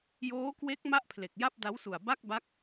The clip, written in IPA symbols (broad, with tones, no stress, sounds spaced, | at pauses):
j oː˦˥ k w e˦˥ k̚ m a˥˩ ʔ pʰ l e˨˩ k̚ j a˥˩ p̚ d a˦˥ w s u˨˩ a̯ b a˥˩ k̚ b a˦˥ k̚